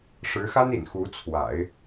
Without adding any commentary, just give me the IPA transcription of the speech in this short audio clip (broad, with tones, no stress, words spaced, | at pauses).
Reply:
ʂɻ̩˧˥xa˥n ḭ˨˩n xu˧˥t͡sʰwa̰˨˩˦ɪ̯